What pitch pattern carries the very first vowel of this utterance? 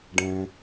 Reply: low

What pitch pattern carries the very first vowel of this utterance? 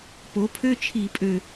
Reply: rising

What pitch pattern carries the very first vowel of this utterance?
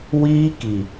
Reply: high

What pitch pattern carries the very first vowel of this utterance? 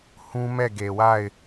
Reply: high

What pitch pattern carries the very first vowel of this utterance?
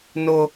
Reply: high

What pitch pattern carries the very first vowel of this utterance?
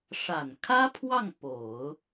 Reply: low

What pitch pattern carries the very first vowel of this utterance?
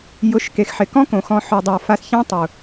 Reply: rising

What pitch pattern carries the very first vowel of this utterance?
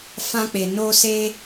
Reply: high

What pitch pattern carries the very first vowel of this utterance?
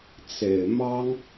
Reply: low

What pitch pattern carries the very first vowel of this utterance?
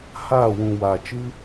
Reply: falling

